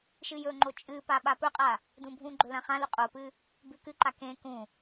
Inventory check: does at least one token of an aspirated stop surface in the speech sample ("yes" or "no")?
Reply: no